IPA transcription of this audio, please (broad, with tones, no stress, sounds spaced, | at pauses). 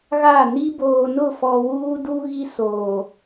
ɣ a˦˨ n i˦ b oː˨ n ʊ˦˨ f ɔ˨ w uː˦ d u˦ ɣ i˦ s oː˨